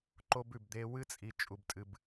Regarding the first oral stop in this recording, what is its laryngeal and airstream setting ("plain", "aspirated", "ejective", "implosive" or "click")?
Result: click